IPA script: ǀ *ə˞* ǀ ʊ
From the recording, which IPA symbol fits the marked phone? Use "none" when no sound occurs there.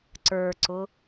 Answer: ə˞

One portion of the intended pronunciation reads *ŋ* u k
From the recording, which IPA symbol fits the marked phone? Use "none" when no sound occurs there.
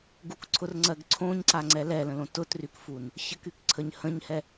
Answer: ɡ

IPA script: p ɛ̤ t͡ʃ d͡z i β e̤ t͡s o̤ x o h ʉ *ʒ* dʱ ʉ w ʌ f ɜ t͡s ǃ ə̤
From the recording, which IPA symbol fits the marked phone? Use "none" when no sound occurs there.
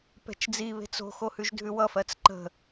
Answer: ʒ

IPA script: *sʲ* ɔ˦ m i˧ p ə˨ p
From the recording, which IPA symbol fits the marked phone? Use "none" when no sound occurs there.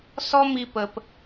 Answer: s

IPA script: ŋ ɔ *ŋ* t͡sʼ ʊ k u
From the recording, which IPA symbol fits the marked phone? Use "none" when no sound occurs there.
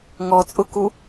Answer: none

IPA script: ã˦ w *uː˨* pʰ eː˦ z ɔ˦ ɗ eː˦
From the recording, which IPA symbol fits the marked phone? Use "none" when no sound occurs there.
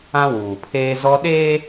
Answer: uː˨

